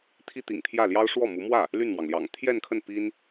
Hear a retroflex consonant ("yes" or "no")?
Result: yes